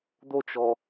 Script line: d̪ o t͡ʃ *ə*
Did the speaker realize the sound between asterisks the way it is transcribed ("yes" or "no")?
no